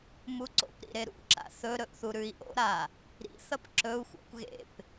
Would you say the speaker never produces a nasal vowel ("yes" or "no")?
yes